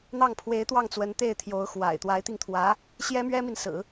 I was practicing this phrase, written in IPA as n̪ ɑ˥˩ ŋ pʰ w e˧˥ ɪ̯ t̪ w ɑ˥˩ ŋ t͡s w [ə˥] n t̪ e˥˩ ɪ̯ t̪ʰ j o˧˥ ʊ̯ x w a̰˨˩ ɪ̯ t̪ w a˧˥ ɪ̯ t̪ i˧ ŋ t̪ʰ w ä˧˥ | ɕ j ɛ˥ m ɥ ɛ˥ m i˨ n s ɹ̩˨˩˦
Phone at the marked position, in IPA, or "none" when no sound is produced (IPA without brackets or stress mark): ə˧˥